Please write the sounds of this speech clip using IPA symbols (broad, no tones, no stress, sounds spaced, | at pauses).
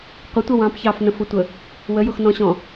qʷ ə tʷ ʌ w ɑ̃ p ç ɑ f n ə̃ f ʊ tʷ ə | w ə j ʊ x n ɔ̃ ɕ ɔ̃